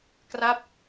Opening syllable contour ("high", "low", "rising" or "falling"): falling